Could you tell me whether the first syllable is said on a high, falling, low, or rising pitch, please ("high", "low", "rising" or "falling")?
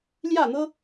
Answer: falling